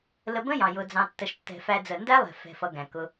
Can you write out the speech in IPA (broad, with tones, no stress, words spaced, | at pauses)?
lə˧bə̃˦jɑ̃˨ jʊ˧d͡zɑ̃˧tːə˧ʃtːɛ̤˧ fæ˧ d͡zə˨ndæ˦lˠɛ̤˨fɛ̤˨ fʌ˧ɡæ̃˨kʊ˧